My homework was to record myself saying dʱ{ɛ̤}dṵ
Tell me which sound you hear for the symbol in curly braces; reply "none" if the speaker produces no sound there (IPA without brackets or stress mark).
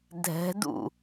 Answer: ɛ̤